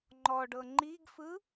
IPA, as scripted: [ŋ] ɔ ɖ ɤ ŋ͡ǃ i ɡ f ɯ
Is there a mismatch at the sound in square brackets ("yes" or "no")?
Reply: yes